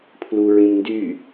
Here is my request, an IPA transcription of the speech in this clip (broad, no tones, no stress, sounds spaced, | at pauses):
pʰ l u ɹ ĩ m n d y